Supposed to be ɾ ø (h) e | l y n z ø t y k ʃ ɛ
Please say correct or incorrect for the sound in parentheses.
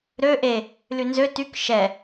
incorrect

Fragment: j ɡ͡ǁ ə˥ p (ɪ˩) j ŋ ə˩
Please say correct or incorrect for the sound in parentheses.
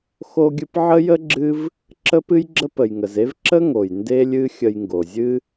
incorrect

